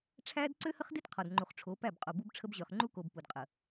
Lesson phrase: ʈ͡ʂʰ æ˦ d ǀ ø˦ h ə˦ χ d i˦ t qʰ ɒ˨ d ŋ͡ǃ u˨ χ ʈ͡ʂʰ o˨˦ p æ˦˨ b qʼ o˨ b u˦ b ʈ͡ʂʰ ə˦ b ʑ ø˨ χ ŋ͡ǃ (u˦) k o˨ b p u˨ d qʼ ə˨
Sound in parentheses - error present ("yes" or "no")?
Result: no